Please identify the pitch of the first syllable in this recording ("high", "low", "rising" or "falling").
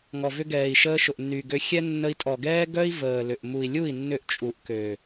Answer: low